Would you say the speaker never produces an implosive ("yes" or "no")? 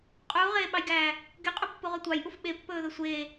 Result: no